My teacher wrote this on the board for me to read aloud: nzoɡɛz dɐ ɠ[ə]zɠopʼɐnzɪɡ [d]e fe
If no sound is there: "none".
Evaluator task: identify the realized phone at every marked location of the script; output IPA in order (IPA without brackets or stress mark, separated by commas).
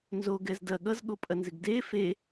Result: ʌ, d